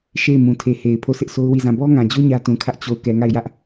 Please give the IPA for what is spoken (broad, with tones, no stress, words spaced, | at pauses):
ʃe˦˨ɪ̯mũ˨tʰe˨he˨ɪ̯ pʰo˦˨sʰɪ˦ʔ so˦ʊ̯wi˦˨zã˦˨ bɔ˦ŋã˨d͡ʑo˦ ɲä˦tũ˨kʰä˦ʔ t͡ɕo˦˨ʊ̯ kɛ˨ŋa˦˨ɪ̯jä˦ʔ